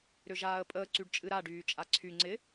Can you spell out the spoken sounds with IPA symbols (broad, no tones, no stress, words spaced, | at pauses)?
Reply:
ɾʏʒaːə̯pʼəː ǀyɖt͡ʃʼɨɾa ɖyːt͡ʃʼaǀʰy ŋ͡ǀɪ